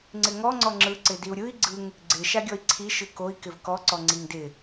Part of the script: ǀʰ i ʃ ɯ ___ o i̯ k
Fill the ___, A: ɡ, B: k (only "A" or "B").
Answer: B